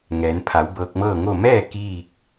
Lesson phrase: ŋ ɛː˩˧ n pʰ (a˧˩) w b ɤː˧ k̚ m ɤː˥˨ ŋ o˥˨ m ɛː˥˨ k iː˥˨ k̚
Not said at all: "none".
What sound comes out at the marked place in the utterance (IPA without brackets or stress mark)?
a˩˧